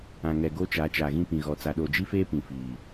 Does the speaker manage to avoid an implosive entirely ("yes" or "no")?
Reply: no